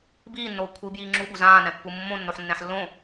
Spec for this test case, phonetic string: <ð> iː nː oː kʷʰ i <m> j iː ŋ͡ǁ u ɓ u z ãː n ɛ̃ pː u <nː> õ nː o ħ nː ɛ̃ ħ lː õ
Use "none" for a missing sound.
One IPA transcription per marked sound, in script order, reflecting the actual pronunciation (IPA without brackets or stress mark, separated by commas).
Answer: b, b, mː